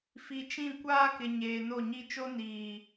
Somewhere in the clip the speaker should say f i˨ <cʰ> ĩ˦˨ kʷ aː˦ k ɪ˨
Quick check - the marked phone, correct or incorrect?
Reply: incorrect